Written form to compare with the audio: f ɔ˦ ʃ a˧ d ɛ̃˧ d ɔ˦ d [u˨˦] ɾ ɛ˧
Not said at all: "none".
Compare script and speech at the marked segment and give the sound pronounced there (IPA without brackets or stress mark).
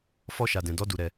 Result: u˧